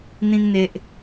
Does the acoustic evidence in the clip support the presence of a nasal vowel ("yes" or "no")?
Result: yes